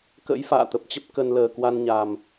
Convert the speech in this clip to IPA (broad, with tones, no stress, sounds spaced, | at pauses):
k ə̰˧˥ j f a̰ː˧˨ t̪ ə˨˩ p̚ t͡ɕ ə˦˥ p̚ k ə˧ n l əː˨˩ k w a˧ n ɲ a˨˩ m